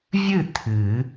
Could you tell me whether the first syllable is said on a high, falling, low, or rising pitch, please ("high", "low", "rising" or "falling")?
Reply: falling